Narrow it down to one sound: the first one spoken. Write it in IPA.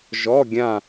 ʒ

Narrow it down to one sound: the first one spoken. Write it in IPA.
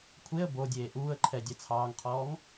kʷʰ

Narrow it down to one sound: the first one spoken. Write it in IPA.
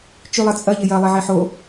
t͡ʃ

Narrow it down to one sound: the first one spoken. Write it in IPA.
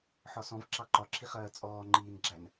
ħ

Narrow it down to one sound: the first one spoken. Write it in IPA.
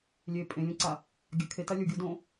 lʲ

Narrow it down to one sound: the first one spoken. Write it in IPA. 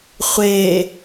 χʷ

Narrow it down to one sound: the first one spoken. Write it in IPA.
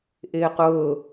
ʔ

